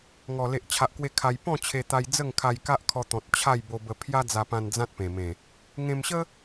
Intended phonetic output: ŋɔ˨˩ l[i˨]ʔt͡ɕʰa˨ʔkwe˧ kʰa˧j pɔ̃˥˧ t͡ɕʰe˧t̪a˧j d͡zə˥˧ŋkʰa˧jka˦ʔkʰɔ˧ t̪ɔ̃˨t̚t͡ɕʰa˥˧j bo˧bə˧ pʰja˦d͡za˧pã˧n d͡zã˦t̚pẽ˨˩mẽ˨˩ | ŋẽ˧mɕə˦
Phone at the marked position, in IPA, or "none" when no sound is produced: e˨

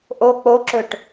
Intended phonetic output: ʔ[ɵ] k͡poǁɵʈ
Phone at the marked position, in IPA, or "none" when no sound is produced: o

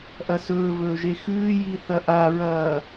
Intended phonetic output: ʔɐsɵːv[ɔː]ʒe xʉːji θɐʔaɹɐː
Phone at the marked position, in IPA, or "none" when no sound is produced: ɵː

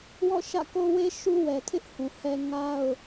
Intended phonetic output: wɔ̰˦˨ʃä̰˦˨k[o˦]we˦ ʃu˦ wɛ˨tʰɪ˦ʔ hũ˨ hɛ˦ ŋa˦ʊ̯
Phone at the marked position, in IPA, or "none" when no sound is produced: o˦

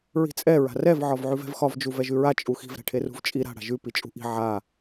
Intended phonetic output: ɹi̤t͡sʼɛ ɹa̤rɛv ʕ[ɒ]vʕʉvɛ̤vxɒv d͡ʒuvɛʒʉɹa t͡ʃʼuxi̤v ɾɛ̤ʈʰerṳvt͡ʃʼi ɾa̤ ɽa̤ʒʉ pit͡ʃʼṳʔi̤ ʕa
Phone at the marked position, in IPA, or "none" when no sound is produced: ɒ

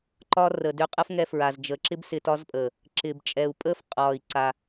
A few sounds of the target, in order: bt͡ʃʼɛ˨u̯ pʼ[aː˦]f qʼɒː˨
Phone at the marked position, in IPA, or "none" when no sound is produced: əː˦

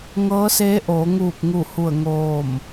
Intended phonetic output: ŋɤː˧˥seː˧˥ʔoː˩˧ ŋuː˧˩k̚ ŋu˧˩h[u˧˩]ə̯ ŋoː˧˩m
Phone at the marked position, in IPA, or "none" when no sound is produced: u˧˩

